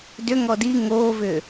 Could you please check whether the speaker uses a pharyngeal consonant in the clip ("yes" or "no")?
no